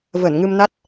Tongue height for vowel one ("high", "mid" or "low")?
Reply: mid